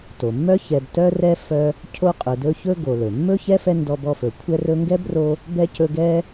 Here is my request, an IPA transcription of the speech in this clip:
t o˩ mː œ˥ ç ɛ˨ b t œ˦ r ɛ˦ f œ˦ | cʰ o˦ qʼ ɵ˨ d ɵ˦ ç ɵ˥ ɡ o˨ l ɵ˩ mː ɵ˥ ç ɛ˥ f ɛ˦ n d ɔ˦ b ɔ˦ f ɵ˨ kʷʰ ɛ˦ r ɵ˦ ŋ ɡ ɛ˥ b r o˦ | b ɛ˥ c ɵ˦ ɡ ɛ˦

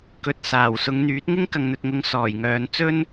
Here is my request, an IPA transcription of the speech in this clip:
k ɵ˨˥ t̚ s aː˨˩ w s ʊ˨˧ ŋ n̪ yː˨˥ t̚ ŋ ɪ˥ ŋ k ɐ˨ ŋ n̪ ɵ˨ t̚ ŋ ʊ˨˧ ŋ s ɔː˨˩ j ŋ œː˨˧ n t͡s ɵ˥ n

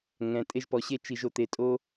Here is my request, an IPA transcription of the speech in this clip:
ŋ ɛ̃˩ tʼ e˧ ʒ p ɔ˩ ɕ e˧ t͡ʃ i˩ ʒ o˩ t̪ e˩ tʼ o˧

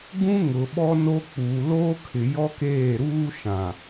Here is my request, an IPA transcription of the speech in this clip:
ɡ ũ˦ ŋ ʊ˨ ɓ ɔ˦ n o˦ k͡p uː˨ l oː˦ kʰ ɪ˨ j ɔ˦ k eː˦˨ ɾ uː˦ ʃ ã˨

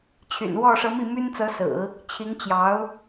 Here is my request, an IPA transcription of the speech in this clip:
t͡ɕʰ y̰˨˩ n w ɔ˥˩ ʂ ɤ˧˥ m i˥˩ m y˥ n t͡s ɤ˧˥ s ɹ̩˨˩˦ | t͡ɕʰ i˧˥ ŋ t͡ɕ j ɑ˧˥ ʊ̯

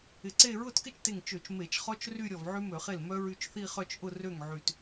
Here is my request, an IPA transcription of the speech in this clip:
ɪ˧˩ ǀ e˥˧ ɹ ʊ˥˩ t k ɪ˥˧ t͡ʃ t e˧˩ ŋ t͡ʃ ø˧˩˧ t͡ʃ m e˧˩˧ t͡ʃ χ ɔ˦˥ t͡ʃ r y˥˧ ɾʲ ɔ˧˩ v ʕ y˦˥ m ø˧˩˧ χ e˥˩ l m œ˦˥ ɹ y˧ t͡ʃ θ i˥˧ χ œ˥˧ t͡ʃ ʔ ʊ˥˧ r ø˥˩ ŋ ʕ y˧˩ t

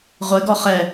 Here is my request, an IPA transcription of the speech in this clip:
ʁʷ ɪ ɡ ɔ χ ɛ

